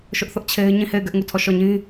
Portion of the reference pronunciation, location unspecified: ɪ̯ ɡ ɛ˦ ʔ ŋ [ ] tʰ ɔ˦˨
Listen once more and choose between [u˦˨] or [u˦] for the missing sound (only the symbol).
u˦˨